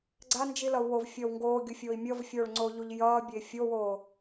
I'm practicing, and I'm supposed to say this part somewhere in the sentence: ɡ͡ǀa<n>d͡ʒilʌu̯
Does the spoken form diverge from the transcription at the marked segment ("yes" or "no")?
no